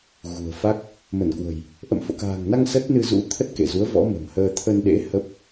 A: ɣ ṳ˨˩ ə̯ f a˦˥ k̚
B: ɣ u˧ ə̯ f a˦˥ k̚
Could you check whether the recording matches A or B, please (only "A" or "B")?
A